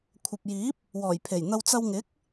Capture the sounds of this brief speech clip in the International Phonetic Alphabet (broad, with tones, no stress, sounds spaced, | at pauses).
kʷʰ ɐ˨ p̚ j iː˨˥ p̚ | w ɔː˨˩ j pʰ e˨˩ j n̪ ɐ˧ w t͡s ɐ˧ w ŋ ɪ˨˥ k̚